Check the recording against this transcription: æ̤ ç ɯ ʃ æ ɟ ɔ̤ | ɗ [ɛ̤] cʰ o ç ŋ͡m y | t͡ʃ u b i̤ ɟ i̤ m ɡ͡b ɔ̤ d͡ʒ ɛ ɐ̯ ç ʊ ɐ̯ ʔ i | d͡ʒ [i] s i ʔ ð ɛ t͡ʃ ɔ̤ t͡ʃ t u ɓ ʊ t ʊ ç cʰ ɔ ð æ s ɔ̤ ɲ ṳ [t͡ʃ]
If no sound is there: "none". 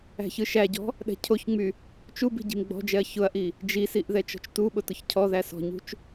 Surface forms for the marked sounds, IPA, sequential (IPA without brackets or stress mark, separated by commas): ɛ̤, i, t͡ʃ